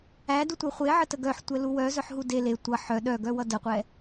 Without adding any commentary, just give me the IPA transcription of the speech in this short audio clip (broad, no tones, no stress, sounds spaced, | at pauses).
æ d u tʷ œ χʷ e ʕ ə t ə ɡ œ ħ tʷ ɛ l u w œ z œ ħ ɦ u d e l e tʷ ʌ ħ œ ɗ œ ɡ œ w ʌ d ə qʷ ɛ